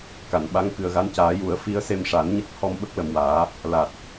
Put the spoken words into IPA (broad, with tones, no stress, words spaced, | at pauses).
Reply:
ka˨˩˨nɓa˧˥ŋkɨ˨˩ə̯ɣa˧˥n caː˨˩˦ju˨˩˦ə̯fi˧˥ə̯ se˧mʂa˨˩˦nɲə˦˥k̚ hɔ˧mɓə˦˥k̚lə˨˩mwaː˨˩˦ | la˨˩t̚